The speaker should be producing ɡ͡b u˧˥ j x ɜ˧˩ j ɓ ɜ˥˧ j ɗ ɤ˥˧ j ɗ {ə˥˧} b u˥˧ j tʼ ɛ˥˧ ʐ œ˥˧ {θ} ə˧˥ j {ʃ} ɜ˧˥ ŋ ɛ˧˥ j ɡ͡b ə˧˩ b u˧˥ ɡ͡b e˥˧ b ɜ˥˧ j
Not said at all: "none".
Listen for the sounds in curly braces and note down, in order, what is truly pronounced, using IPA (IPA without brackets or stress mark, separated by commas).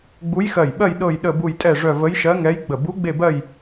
ə˥˧, v, ʃ